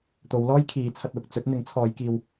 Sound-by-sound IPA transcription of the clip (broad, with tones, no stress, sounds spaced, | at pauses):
t̪ o˨˧ w l ɔː˥ j kʰ iː˨˧ t͡sʰ ɐ˧ t̚ w ʊ˧ k̚ t͡s ɵ˨˥ t̚ n̪ ɪ˨˥ ŋ t͡sʰ ɔː˨˧ j k iː˧ w